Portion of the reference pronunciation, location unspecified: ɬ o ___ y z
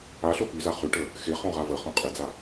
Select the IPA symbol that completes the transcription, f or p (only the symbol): p